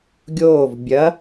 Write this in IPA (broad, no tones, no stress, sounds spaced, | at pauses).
ɡʲ oː v bʲ ɐ